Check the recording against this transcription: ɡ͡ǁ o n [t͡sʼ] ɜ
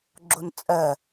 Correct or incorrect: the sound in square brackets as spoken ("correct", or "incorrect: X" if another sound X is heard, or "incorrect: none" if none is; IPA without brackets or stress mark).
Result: correct